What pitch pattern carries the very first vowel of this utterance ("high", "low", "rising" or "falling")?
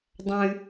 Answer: high